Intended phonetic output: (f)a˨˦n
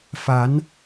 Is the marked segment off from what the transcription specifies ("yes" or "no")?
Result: no